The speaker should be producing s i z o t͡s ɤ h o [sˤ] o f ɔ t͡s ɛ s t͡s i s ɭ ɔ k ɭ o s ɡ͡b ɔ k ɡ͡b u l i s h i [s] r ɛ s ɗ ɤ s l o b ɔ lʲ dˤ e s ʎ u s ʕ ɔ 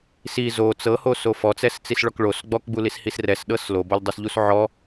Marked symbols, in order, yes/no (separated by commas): no, yes